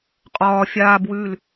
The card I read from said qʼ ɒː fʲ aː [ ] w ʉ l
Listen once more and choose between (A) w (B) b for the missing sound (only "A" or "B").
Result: B